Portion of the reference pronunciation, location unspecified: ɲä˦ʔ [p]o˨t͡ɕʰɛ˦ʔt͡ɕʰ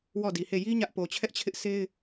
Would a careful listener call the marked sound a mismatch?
no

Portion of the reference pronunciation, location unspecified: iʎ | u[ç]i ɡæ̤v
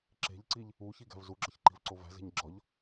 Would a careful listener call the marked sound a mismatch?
no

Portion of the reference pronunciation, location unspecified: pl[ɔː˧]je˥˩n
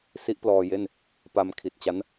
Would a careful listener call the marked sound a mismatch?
no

